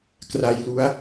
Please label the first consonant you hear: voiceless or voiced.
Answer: voiceless